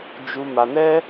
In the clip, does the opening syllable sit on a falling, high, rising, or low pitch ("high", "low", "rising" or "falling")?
high